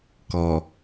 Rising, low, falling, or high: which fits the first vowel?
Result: low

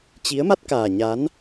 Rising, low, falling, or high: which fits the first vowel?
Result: rising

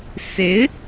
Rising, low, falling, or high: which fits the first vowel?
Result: rising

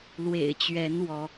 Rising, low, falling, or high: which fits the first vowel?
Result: low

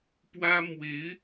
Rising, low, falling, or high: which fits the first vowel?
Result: high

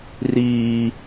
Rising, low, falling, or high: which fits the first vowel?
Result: high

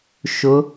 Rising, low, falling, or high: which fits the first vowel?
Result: rising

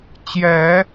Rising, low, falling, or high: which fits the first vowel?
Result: low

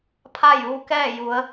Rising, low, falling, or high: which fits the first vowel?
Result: falling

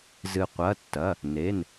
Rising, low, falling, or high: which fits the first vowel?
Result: low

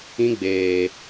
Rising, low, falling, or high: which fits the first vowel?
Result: high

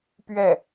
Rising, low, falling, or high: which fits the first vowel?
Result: falling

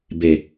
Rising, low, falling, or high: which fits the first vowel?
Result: low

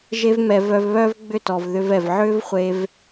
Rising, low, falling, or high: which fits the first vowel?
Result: high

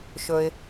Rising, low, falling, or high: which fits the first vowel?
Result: low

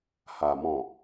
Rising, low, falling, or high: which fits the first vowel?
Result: low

